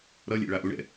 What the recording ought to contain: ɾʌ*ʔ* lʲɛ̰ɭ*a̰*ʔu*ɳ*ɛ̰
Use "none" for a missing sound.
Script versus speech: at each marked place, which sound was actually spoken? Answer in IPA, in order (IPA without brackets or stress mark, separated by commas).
none, a, ɳ